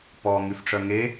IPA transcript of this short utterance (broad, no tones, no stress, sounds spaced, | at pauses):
p ɔ ŋ y f ʈ͡ʂ œ ŋ e